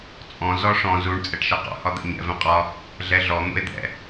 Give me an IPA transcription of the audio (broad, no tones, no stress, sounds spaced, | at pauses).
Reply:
t͡sʼ ɔ̃ z ɔ ʂ ɔ̃ z u ɳ t͡sʼ ɛ ʈ ʃ ʌ q ɔ̰ h ɒ d̪ ɛ̰ ɲ ɛ̰ v ɛ̃ qʼ ɒ | ɮ ɛ ɮ ɔ n̪ ṵ e̯ d̪ ɛ̰